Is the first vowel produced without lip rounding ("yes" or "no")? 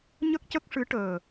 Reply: yes